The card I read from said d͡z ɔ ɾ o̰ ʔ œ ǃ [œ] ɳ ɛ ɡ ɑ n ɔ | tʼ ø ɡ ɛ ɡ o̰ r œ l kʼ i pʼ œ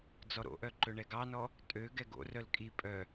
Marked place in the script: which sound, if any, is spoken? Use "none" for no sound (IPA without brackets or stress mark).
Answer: ɵ